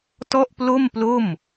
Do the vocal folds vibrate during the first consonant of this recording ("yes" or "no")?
no